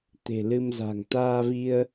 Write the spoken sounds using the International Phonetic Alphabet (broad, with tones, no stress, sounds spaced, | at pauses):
t̪ e̤˨˩ l ɨ˧ m z a̤˨˩ ŋ t̪ aː˧ v i˧ ə̯